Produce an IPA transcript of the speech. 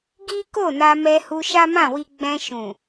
ɡ i˦ k o˦˨ n a˧ m ɛ˧ h u˧ ʃ a˦ m ã˦˨ w i˧ ɡ͡b ɛ̃˧ ʃ ũ˨

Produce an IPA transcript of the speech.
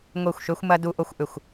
ŋʷ e˥˨ xʷ ʃ ø˥ xʷ m ɐ˥ d u˥ ʔ o˥ xʷ ʔ ʏ˥˨ xʷ

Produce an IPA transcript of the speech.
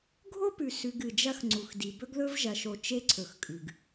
ɡʱ o˦ p ʉ˨ s ʉ˨ ɡ ɨ˨ d͡ʒ ɐ˦ x ŋ͡ǀ u˨ x d i˨ b ɵ˦ ɡ ð ɵ˦ v ʒ ɐ˨ ʃ o˨ t͡ʃ e˦ ǀʰ ɵ˨ x kʼ ʉ˨ ɡ

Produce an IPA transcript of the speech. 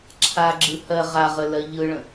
ǁʰ a ɡ͡ǁ ɯ h ɜ ʁ a ʁ ə l ɜ ʎ ɯ ɭ ə̃

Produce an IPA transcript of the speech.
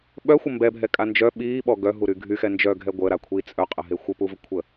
ɓ œ xʷ ə m b ɛ bʱ ɛ kʼ a n d͡ʒ œ ɓ iː ɓ ɔ ɡ œ ɦ u ɾ y ɡʱ y x ɛ n d͡ʒ œ ɡʱ ɛ ɡʷ əː ɾ a kʷʰ i t͡sʼ œ qʼ ə ɦ e xʷ ə p u v ə kʷʰ ə

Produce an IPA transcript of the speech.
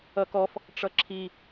ʌ k ɔ f | ʈ͡ʂ ʌ ǁʰ i

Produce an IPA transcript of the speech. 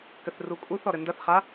k ɘ θ r u kʼ u θ ɔ ɾ ɘ n d ɐ θ χ a

